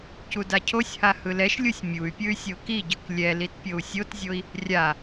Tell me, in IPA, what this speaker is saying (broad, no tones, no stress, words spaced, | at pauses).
cudacʰosʲha hɯlɛʃlʲusʲ mʲuy̯pʲɯy̯ sʲokiɟɯk lʲɛlit pʲou̯sʲotzʲoi̯ | rʲa